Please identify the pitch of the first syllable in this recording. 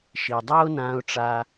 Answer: low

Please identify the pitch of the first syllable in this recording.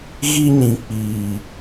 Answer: high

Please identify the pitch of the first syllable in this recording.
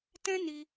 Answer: high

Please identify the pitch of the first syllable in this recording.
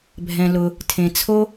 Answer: low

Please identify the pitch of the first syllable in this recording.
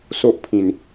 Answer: high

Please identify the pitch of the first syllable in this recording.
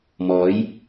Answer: rising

